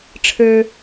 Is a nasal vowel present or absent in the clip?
absent